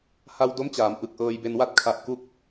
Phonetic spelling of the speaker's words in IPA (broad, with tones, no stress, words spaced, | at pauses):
ha˧wdo˦˥mt͡ɕaː˩˦m ʔɯ˨˩k̚ʔɤː˧jbe˧nwa˥˩t̚ kʰa˦˥ʔku˥˩k̚